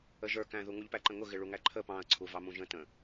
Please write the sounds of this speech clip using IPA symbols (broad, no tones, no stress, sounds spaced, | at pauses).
ə ʒ ə˞ k æ̃ ð u ŋ u ʎ p æ ǃ ə̃ ŋ ʊ ɣ ɪ ɭ u ŋ æ ǃʰ ə p ɑ̃ ɐ̯ ǀʰ u v ɑ m ũ ʒ ə̃ t ə̃